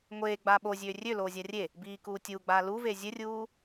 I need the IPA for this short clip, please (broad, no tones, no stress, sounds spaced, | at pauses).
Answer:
ŋʷ eː ɡ͡b aː ɓ o zʲ øː rʲ ø l oː zʲ a rʲ e | b iː k uː tʲ uː ɡ͡b aː l u v eː zʲ ɘ rʲ uː